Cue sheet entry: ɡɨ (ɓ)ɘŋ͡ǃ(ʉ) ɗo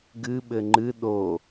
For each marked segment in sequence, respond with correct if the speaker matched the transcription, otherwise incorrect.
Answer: correct, incorrect

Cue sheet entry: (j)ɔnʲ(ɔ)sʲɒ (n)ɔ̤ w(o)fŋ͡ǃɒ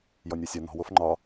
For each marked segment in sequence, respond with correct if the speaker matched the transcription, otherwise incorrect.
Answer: correct, correct, correct, correct

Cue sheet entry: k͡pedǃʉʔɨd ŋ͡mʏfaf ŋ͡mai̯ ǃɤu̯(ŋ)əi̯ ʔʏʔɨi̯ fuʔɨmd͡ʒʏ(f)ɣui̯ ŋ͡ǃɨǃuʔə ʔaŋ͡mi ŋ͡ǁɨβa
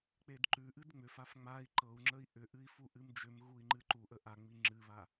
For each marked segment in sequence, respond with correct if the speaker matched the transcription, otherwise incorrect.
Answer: incorrect, incorrect

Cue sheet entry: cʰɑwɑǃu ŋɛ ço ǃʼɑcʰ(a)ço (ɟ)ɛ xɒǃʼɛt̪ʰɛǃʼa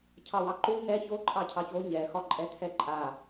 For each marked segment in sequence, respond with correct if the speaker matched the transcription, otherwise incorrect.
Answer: incorrect, incorrect

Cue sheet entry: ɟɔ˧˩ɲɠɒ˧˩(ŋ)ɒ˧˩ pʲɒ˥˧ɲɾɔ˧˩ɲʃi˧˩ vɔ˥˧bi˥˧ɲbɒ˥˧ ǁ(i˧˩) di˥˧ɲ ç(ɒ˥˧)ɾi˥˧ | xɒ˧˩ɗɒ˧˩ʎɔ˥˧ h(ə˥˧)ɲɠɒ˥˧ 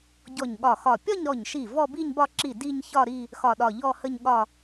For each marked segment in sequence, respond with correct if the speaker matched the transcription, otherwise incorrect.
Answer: incorrect, correct, correct, correct

